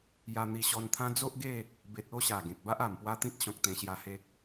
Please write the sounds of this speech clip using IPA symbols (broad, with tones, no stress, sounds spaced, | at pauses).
j a˧ n̪ i˧ ɕ ɔ˧ n t̪ʰ ã˦ d͡z o˦ ʔ ɡ e˥˧ | b e˨ t̚ o˥˧ ɕ a˨˩ ɡ ẽ˨ k̚ b a˦ ʔ a˨˩ m p w a˦ t̪ ĩ˦ t̚ ɕ ɔ̃˨ k̚ t̪ ẽ˧ ɕ j a˧ h e˦ k̚